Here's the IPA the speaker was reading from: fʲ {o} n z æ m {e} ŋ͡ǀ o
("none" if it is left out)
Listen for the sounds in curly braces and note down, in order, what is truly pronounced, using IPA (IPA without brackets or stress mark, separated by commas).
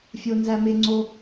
o, e